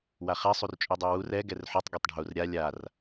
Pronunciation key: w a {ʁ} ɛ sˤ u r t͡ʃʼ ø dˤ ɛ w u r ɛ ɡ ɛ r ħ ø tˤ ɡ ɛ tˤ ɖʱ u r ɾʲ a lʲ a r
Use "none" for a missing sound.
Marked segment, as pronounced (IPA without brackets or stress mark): χ